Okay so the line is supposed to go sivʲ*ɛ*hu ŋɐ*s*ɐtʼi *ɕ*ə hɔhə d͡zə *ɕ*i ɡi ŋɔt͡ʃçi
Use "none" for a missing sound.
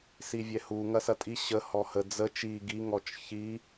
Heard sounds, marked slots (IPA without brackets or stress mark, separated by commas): ɛ, s, ɕ, t͡ʃ